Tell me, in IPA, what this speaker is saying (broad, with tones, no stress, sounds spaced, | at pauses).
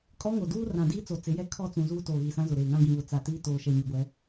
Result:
kʼ ɔ˦ ŋ o˨ d uː˦ r ã˨ d iː˦ t͡s o˨ t͡s ɪ˨˦ j ɛ˦ kʰ ɔ˦˨ t͡s ũ˨ z uː˦ t oː˨ ɣ i˨ s ã˦ z ʊ˨ ɾ eː˨ ŋ ã˦ ɡ ĩ˨ β ʊ˨ t͡s a˨ t iː˦ t oː˨ ʃ ɛ˨ ɲ ɪ˨ ɡʷ ɛ˨˦